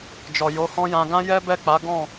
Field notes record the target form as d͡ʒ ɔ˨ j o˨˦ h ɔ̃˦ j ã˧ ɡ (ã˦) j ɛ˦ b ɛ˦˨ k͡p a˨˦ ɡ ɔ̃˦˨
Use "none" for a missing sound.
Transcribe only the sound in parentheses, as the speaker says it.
ã˦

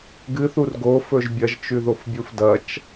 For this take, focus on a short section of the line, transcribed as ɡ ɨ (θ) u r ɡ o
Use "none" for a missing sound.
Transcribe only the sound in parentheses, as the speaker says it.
θ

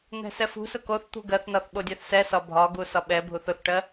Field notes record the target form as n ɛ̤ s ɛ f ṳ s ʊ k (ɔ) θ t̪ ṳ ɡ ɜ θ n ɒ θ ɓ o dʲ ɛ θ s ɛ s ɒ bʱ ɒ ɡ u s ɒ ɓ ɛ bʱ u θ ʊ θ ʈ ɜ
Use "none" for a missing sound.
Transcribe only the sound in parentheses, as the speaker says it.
o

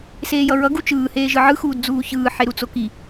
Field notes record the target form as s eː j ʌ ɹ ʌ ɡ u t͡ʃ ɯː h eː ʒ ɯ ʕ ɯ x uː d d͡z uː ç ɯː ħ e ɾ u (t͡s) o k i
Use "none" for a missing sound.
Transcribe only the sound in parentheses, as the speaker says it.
t͡s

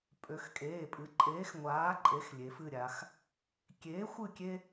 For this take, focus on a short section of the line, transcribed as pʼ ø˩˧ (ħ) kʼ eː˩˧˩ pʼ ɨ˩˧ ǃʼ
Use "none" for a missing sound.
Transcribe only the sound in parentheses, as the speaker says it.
x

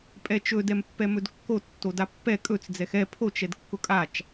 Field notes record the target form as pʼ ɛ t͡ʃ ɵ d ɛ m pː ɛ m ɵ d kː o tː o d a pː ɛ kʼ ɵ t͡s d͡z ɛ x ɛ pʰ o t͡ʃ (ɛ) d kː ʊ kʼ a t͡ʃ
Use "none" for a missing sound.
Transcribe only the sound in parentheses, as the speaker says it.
ɛ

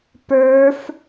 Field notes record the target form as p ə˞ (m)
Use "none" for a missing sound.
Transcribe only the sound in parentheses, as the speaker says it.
f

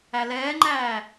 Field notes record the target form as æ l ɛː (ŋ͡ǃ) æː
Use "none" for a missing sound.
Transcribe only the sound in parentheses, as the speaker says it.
ŋ͡ǃ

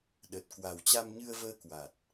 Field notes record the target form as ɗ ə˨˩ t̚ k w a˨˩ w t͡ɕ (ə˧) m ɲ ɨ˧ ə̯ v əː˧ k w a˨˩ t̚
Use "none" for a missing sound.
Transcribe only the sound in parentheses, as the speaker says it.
a˧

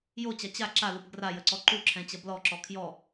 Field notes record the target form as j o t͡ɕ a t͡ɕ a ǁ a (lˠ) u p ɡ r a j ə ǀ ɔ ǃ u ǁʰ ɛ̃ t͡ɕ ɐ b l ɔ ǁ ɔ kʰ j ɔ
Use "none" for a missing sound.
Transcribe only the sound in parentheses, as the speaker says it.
l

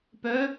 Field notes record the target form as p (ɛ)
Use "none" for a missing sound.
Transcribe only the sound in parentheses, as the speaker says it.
œ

